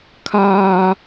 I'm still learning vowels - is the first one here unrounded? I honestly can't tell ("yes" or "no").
yes